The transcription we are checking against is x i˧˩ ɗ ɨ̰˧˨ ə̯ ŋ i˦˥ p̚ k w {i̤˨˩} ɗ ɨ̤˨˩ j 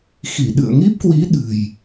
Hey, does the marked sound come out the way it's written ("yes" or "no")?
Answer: no